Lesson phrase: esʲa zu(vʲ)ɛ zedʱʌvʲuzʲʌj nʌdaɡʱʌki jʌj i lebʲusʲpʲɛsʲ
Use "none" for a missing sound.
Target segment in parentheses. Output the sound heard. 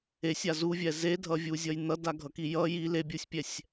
vʲ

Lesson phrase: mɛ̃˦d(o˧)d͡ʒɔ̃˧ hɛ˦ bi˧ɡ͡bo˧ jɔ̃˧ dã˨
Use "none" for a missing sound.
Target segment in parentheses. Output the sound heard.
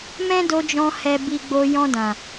o˧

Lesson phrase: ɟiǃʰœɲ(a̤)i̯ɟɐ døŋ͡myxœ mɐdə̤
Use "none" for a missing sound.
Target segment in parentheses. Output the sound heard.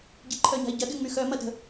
a̤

